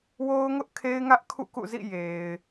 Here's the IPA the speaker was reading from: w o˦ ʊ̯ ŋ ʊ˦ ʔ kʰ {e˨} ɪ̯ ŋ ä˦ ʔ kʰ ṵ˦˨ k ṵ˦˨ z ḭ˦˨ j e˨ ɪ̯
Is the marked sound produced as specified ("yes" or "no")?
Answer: no